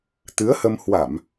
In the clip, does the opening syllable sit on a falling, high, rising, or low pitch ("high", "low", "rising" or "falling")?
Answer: rising